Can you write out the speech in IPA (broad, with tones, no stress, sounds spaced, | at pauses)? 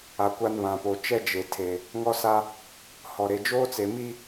a˨ kʷ a˦ n β ã˨ p o˨ t͡ʃ ɛ˦ d͡ʒ e˨ tʰ e˨ | ŋ ɔ˦ s a˦ | h ɔ˨ ɾ e˨ d͡ʒ oː˦ t͡s e˨ m i˦